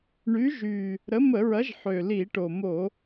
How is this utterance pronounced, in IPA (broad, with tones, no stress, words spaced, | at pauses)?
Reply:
ɳy˨˥ʒy˨˩ | ɾə˨˥mə˧˩˧ɹɐ˨˥ʒ ħø˨˩li˧˩˧ʈo˨˩mo˧˩˧